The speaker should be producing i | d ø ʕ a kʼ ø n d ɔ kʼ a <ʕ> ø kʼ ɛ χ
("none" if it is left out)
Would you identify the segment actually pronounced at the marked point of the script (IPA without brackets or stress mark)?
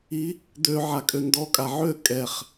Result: ʕ